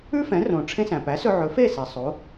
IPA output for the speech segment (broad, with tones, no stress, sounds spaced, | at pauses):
ʉ˥ f ɛ̃˩˥ r õ˩ ʈ͡ʂʰ ẽ˧ s æ̃˩ p æ˩˥ s ɵ˧ ʕ ɵ˩˥ f e˥˩ s ɛ˩ sˤ o˩˥